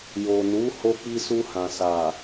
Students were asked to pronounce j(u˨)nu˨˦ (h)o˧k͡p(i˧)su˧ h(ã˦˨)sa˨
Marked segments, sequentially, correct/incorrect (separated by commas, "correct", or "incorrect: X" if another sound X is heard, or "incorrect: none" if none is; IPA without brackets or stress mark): incorrect: o˨, correct, correct, incorrect: ã˨